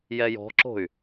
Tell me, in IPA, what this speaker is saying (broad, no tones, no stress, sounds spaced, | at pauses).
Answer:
j ɛ j ɔ̤ ǁ o̤ y̯